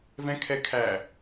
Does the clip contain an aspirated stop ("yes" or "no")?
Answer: yes